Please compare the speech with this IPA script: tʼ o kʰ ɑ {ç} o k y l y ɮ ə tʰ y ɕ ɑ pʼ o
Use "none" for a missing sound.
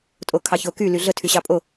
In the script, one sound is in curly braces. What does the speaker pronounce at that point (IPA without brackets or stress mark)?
ç